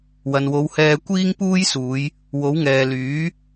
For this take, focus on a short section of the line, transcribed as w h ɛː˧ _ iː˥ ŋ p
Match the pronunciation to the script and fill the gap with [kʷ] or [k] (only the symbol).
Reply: kʷ